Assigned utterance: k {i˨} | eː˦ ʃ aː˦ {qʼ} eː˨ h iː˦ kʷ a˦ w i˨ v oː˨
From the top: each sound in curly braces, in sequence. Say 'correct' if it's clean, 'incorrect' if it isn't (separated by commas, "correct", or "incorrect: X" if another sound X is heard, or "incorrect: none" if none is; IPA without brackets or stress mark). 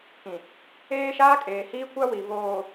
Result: incorrect: ĩ˨, incorrect: kʼ